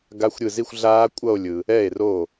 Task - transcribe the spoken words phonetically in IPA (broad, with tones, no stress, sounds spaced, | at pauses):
ɡ a˦˥ xʷ ɾʲ ɯ˧˩ z i˥˧ xʷ ɮ aː˦˥ kʷʼ ʌ˥˧ o̯ lʲ ɯ˩ | ɛ˥˩ e̯ r o˥˩